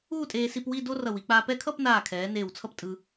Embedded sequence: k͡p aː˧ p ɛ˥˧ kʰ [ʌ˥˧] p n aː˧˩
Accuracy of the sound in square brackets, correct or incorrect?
correct